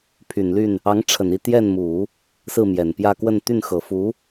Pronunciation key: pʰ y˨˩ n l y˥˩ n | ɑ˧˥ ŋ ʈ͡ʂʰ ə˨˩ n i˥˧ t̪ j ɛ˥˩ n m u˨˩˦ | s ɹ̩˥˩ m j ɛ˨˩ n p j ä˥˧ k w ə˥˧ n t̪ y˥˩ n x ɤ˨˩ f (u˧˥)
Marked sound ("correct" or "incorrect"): correct